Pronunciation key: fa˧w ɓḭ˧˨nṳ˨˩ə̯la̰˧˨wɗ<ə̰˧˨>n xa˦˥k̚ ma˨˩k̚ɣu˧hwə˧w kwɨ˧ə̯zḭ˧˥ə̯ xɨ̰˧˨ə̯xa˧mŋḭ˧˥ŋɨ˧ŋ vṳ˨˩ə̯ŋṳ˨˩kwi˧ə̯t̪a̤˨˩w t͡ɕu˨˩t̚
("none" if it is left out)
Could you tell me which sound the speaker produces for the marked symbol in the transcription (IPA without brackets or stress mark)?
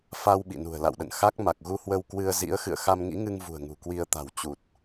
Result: ə̰˧˨